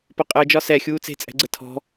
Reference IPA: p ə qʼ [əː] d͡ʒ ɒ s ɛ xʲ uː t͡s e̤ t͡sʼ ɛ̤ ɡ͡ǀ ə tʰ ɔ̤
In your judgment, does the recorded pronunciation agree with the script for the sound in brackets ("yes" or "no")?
yes